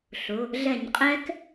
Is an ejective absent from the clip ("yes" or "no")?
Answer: no